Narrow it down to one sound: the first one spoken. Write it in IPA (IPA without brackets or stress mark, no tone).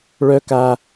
ɭ